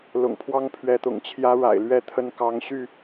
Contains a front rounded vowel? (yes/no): yes